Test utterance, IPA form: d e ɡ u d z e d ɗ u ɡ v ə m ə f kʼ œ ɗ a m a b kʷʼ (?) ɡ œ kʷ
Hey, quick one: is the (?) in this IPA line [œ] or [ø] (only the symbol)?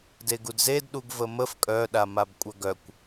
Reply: œ